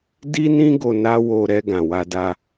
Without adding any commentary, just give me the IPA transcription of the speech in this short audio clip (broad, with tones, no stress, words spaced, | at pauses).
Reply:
di˦nĩ˦ ɡo˧na˦wo˧ ɾɛ˧ ɡã˨wa˧da˧